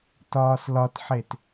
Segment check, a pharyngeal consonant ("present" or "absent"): present